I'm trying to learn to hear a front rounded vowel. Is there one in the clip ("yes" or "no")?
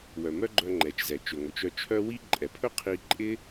yes